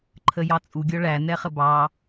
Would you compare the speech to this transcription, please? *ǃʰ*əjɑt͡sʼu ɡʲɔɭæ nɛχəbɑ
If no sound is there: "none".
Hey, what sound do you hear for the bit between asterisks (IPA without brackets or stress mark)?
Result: ǃʰ